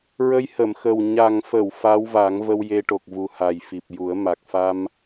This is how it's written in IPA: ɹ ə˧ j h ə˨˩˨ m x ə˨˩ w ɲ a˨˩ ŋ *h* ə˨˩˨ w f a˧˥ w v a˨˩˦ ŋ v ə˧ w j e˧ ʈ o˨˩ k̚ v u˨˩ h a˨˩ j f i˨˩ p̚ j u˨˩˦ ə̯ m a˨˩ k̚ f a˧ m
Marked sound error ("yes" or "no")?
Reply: yes